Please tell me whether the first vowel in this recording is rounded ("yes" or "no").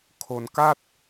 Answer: yes